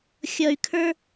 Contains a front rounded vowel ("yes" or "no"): yes